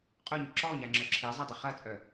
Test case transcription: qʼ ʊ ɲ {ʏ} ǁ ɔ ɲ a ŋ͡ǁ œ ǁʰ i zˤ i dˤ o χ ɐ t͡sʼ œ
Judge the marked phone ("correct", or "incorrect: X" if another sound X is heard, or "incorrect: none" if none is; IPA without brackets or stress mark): correct